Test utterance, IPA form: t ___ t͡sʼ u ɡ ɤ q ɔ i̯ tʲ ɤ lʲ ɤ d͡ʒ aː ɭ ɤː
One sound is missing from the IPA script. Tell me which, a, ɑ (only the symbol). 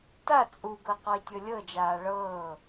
a